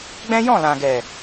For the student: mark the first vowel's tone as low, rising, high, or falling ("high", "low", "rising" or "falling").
high